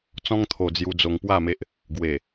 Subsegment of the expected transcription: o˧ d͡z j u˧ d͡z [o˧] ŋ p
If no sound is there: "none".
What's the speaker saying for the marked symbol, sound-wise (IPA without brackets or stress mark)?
o˧